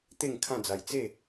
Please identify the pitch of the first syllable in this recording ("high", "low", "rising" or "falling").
falling